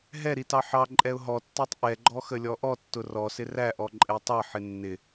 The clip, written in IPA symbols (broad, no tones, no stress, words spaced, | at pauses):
ɦɛɾi tɑħɑǃʼɛʊ̯ ɦɔtːætˤ ʔɛɡ͡ǃɔ xəlʲɔʔɔtːʊ rɔsɪ ræʔɔ ǃʼɛtˤɑħɪ nːɪ